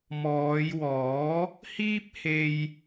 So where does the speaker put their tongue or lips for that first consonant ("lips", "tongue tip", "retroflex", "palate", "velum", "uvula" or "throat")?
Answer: lips